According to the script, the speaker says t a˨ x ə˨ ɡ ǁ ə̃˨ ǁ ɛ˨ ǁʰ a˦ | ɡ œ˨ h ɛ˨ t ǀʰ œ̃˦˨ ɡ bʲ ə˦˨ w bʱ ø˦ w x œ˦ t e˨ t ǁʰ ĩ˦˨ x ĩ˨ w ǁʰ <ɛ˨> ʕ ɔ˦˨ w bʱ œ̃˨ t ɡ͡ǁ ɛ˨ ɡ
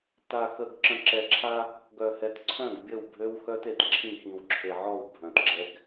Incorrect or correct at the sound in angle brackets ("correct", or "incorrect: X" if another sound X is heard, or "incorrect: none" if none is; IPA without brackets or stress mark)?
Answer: incorrect: e˨